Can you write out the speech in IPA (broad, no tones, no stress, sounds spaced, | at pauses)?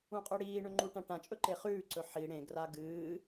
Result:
ũ qʼ ɵ ɽ iː ɳ ɵ ŋ͡ǃ u ʈ ã ʈ ã t͡ʃʼ ɵ ǃ e χ ʉː ǀ ɵ ħ i ɽ ẽ ɡ r a ɡ ɨː